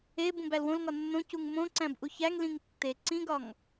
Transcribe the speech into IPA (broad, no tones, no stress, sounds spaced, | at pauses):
e b ũ b æ l w õ l ŋ ɒ nː õ c u ŋ m õ ǀ æ̃ b ʔ u ç æ ŋ l ĩ ŋ tː e ǀ ĩ ɡ ɒ ŋ